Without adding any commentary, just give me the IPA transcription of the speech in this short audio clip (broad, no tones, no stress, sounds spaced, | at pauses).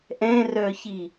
ʔ ɛ̃ r œ ç i